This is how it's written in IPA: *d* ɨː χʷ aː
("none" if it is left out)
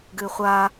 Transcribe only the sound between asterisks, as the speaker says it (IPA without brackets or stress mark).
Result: ɡ